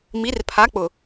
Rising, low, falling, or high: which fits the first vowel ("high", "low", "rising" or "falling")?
rising